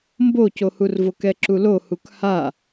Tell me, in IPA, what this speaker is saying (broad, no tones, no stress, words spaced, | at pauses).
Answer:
mbocohurvok ɛǁulohuk ha